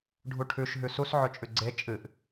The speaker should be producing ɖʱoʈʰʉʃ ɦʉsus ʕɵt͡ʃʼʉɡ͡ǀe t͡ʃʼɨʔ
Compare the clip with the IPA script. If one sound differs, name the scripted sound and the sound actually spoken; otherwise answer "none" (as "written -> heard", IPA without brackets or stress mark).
o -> u